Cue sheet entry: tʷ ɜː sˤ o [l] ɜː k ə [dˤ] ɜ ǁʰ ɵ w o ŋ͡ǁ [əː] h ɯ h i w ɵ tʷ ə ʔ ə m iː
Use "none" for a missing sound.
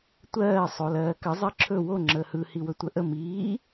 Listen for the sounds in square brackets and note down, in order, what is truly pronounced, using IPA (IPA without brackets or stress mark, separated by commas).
l, zˤ, əː